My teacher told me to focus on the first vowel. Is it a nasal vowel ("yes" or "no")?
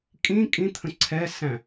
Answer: yes